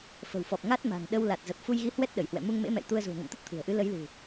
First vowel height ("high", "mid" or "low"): mid